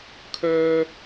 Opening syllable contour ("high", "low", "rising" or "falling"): high